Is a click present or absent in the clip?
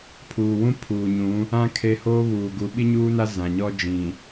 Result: absent